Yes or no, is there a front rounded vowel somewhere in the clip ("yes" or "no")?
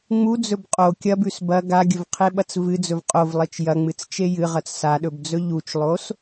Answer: no